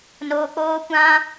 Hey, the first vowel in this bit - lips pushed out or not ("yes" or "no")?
yes